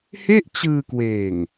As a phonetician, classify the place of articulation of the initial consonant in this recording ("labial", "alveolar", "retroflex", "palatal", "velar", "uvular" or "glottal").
glottal